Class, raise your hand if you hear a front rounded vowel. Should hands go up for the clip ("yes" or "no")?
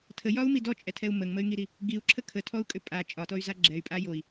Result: yes